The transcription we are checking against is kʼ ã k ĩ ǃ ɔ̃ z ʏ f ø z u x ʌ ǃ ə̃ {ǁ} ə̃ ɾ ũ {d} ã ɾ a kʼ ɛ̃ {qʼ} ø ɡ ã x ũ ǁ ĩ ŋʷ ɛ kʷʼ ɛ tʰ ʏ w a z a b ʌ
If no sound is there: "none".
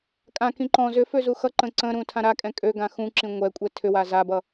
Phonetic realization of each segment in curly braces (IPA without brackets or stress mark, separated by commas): ǀ, tʰ, kʼ